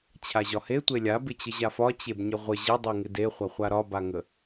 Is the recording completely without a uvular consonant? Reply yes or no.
no